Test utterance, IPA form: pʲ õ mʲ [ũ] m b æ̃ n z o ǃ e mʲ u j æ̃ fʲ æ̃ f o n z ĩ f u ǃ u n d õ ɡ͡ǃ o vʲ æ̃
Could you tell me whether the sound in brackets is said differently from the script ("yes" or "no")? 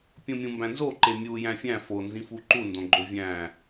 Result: no